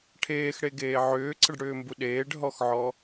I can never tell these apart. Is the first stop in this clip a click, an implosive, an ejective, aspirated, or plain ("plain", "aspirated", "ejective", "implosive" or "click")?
aspirated